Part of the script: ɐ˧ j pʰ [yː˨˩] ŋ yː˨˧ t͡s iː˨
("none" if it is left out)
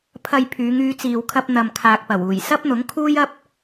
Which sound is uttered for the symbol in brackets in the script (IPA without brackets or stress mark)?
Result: yː˨˧